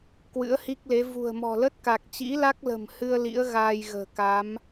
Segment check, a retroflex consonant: absent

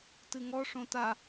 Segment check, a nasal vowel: present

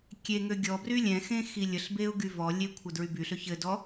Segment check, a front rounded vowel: present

